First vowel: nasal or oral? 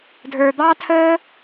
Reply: oral